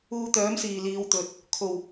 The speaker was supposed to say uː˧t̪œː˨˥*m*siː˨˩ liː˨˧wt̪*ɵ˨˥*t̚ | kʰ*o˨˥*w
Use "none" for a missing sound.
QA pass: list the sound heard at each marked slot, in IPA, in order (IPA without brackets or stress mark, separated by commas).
m, ɵ˨, o˨˩